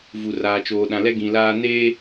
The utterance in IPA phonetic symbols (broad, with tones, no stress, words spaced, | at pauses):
vu˨raː˨t͡ʃoː˨ ɗã˨lɛ˦ ɡĩ˨laː˦ neː˦